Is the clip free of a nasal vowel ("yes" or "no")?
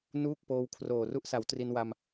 yes